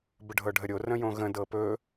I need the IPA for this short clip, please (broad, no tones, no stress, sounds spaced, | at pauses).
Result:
b ə ɖʱ ɤ ɖʱ ə ɾʲ o r ə̃ j õ ɣ ə̃ d ɤ p ɵ